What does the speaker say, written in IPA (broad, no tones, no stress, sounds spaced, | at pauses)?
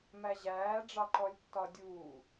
m æ ʑ æː ɖ͡ʐ ɑ ǃ ɔ lʲ tː ɒ dʲ uː